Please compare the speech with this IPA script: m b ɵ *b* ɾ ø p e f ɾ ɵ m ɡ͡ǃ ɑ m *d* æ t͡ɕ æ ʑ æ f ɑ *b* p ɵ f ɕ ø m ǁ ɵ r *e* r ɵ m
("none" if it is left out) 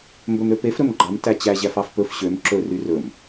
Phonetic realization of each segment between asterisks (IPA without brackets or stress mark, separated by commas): m, t, f, y